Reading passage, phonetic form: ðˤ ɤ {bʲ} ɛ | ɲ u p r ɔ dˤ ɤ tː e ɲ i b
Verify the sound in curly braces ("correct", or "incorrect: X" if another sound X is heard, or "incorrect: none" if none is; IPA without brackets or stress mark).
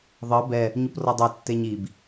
incorrect: b